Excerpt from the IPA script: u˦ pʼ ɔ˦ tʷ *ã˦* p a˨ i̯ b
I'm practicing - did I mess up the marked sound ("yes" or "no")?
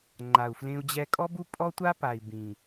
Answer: yes